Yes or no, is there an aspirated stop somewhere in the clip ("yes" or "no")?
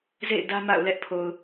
yes